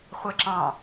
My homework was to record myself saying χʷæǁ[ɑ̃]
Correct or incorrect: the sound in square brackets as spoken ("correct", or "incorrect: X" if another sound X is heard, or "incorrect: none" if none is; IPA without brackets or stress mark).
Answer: correct